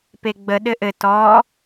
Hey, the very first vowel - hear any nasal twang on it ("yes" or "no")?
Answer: no